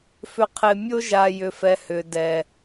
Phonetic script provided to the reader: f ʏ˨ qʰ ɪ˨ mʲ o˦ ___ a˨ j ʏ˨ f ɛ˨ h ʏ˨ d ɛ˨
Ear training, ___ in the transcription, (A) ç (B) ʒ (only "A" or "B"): B